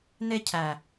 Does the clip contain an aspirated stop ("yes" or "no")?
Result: yes